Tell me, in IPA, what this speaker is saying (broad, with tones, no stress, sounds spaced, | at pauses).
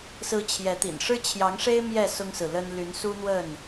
s ɹ̩˨˦ t͡ɕʰ j ɛ˨˦ t̪ ḭ˨˩ n ʂ ɻ̩˦ t͡ɕʰ j ɑ˨˦ ŋ ʂ e˦ ɪ̯ m j ɛ˥˨ s ʊ˦ ŋ s ɹ̩˨ l ə˦ n l y˨˦ n s u˦ n̪ w ə˥˨ n